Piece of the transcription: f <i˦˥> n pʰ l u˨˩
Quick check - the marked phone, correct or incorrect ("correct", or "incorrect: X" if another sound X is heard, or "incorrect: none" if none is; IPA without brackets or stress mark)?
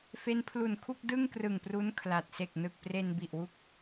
incorrect: e˦˥